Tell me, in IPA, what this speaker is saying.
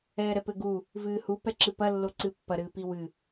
ɛː ɾ ɛ p ɘ ɡ u | v ɨː h u p ɛ ǁ ɨ p ɐ lː o ǀ ɨ pː ɐ ɾ ɨː p i w ɨ

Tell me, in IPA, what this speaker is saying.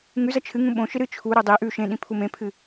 ŋ ʉ z ɐ t͡ʃʰ ɨ ŋ ũ ɓ õ ʃ ɨ ɾ ɨ t͡ʃʰ u ɾ o dˤ i ʔ ʉ ʃ ẽ ɗ ĩ pʰ u m ẽ pʰ ɨ

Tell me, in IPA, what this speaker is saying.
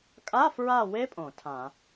kʼ a˧˥˧ f ɹ a˦˨ w e˦˥ pʼ õ˧˩˧ tʰ ã˧˩˧

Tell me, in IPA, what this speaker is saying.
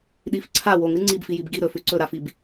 ɗ i f ǀʰ a w o ŋ ɾ ɨ ŋ͡ǀ i b f i j i b ɡ i ɾ ɵ f ʉ ǀ ɵ ɾ a f i b

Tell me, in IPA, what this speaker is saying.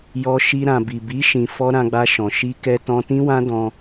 j ɔ˧ ʃ i˧ ɾ ã˨ b i˨ b i˨˦ ʃ ĩ˧ f ɔ˦ ɾ ã˧ ɡ͡b a˧ ʃ ɔ̃˨ ʃ i˧ k ɛ˧ t ɔ̃˧ t ĩ˦ w ã˦ d ɔ̃˧

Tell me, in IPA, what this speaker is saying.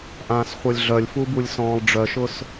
ʔ ãː s χʷ œ lʲ ɮ œ lʲ f u b u lʲ s ɔ̃ː lˠ ɖ͡ʐ œ ʃ ʊ s

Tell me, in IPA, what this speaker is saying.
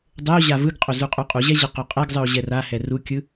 dˤ ɘ o̯ ʑ a v ɯ ɡ qʼ o z u qʼ u qʼ u ʑ ɛ ʑ ɘ q o qʼ ɛ ɡ zˤ ɯ o̯ ʑ ɛ r a h ɛ r u kʲ ɯ

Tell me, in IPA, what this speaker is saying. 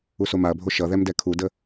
u s o m a ɐ̯ bʱ o ʃ ʌ ð ɛ m d ɛ kʰ u d ə

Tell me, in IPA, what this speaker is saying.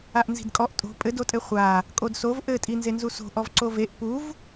a ʔ n z i̤ d kʼ ɔ ʔ tʼ o̤ pʼ ɘ d o tʼ ɘ χʷ a | kʼ o d s o v ʔ ɘ tʼ i n z e n z u s o̤ ʔ ɔ v ǀ o v e ʔ p u v

